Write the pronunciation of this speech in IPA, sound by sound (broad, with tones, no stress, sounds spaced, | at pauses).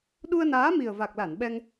ɗ u˧ ə̯ n aː˨˦ m i˨˩ ə̯ v a˨˩ k̚ l a˧˩ n ɓ ɛ˧ ŋ